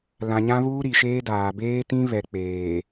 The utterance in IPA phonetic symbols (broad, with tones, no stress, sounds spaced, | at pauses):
l ã˨ ɲ ã˦ β uː˦ ɾ i˨ ʃ eː˦ d aː˨ b eː˦ t ĩ˦ β ɛ˨ k͡p eː˨